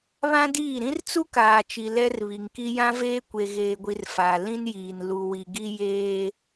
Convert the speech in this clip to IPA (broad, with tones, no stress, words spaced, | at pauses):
βã˦diː˦˨ ɾĩ˦rt͡su˦kaː˨t͡ʃi˨ lɛ˦rβi˨ŋki˦ jã˦veː˦kʷe˨ ɣeː˨ɡʷi˨r faː˨ lĩ˦njiː˨n lu˨wi˨ɡi˦ jeː˦